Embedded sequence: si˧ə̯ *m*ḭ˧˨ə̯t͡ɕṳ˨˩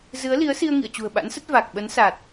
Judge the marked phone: incorrect: ŋ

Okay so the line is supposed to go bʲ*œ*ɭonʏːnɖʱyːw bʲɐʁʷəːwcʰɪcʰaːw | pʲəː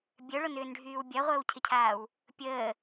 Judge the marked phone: correct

